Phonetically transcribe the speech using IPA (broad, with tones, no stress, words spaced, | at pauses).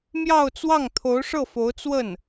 mjɑ˥˧ʊ̯t͡swɑ˥˩ŋ t̪ʰo˧˥ʊ̯ʂɤ˥˩fo˧˥ʊ̯ t͡swə˥˩n